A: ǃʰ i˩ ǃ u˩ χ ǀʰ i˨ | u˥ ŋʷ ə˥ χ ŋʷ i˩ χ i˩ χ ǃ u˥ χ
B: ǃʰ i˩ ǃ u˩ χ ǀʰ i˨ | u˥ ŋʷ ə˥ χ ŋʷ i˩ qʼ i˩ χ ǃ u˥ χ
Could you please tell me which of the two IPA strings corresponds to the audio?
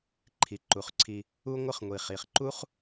A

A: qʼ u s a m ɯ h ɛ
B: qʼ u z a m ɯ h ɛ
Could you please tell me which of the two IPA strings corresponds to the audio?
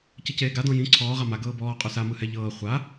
A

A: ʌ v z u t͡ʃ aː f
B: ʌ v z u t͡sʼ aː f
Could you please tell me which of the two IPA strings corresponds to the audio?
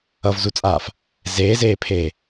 B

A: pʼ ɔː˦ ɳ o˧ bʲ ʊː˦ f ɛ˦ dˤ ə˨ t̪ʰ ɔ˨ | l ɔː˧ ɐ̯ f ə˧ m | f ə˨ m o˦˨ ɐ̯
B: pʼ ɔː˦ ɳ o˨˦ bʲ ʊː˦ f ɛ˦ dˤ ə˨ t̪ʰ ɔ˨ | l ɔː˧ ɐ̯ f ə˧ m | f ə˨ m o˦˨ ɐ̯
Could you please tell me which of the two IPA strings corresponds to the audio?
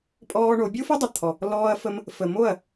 B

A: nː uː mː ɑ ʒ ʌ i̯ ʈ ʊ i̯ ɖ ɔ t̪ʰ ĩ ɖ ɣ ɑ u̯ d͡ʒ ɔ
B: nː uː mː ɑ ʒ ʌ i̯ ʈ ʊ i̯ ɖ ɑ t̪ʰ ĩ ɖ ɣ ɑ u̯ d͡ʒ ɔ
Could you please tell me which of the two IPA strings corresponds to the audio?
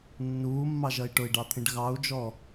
B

